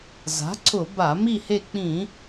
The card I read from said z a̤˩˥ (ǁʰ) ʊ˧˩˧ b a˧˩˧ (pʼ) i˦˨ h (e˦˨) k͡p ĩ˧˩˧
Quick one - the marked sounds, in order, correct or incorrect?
incorrect, incorrect, correct

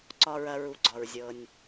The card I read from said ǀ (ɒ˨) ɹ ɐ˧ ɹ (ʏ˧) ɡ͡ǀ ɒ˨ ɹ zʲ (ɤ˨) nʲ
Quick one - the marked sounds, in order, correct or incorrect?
incorrect, incorrect, correct

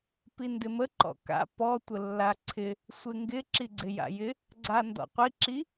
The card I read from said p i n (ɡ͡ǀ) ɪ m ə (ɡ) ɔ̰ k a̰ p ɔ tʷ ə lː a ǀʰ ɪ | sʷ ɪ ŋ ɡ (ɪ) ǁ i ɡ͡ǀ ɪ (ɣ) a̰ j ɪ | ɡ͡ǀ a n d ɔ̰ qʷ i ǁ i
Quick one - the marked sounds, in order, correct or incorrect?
incorrect, incorrect, correct, incorrect

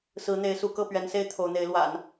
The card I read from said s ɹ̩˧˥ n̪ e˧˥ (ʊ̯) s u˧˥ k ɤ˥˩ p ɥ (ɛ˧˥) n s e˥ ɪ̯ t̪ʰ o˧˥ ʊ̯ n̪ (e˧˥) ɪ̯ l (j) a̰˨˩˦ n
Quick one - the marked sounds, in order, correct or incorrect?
incorrect, correct, correct, incorrect

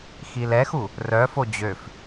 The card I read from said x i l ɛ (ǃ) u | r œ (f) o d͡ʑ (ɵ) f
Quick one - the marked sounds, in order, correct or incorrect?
incorrect, correct, incorrect

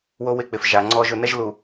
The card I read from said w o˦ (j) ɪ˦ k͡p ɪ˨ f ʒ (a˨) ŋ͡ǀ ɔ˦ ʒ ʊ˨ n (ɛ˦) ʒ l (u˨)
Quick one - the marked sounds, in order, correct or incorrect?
incorrect, correct, correct, correct

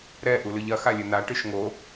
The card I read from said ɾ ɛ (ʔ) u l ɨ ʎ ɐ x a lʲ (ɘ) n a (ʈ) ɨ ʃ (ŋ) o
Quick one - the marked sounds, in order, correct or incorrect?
correct, correct, correct, correct

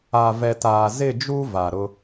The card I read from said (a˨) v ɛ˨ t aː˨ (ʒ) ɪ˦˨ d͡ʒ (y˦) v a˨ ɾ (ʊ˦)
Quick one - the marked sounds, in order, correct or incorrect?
correct, incorrect, incorrect, correct

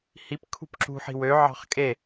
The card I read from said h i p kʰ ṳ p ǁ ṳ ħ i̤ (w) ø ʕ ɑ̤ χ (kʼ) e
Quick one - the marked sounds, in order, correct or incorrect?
correct, correct

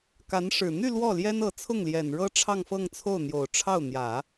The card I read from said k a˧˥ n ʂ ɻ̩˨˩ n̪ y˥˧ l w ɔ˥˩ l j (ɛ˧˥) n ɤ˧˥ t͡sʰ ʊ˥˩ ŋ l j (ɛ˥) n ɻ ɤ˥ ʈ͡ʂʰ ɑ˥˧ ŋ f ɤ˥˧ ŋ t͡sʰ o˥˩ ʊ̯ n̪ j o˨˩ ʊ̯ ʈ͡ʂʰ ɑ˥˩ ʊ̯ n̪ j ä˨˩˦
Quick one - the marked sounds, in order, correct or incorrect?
incorrect, incorrect

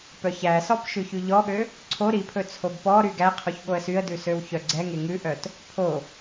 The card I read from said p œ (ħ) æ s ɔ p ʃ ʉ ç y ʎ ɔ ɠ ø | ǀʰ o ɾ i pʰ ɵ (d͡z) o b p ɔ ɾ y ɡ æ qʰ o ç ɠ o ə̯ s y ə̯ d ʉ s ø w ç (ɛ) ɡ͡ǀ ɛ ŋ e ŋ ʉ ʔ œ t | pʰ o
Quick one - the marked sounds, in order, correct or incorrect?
incorrect, incorrect, incorrect

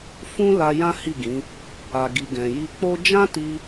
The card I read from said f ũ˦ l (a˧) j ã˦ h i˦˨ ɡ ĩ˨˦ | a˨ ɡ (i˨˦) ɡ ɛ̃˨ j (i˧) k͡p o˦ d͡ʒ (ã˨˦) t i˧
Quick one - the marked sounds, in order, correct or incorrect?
correct, incorrect, correct, incorrect

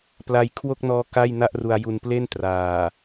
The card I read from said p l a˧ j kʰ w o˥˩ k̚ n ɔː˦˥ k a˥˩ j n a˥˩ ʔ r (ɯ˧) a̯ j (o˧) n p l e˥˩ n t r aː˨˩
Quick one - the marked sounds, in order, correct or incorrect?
incorrect, incorrect

